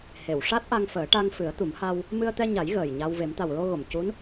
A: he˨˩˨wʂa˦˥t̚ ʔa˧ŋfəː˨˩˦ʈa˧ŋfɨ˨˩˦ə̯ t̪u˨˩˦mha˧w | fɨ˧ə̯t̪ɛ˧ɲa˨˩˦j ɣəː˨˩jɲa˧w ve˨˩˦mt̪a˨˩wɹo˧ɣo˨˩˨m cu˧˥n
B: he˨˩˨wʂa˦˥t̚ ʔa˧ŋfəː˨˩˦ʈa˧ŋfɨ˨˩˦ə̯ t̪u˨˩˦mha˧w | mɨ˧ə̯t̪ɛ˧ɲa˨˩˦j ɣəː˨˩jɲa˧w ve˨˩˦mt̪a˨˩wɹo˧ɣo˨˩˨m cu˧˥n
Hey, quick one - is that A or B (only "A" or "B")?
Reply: B